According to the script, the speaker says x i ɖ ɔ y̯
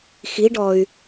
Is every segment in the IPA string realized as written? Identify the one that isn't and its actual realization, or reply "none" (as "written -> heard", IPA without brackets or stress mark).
none